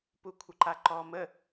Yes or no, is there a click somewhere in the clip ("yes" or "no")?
yes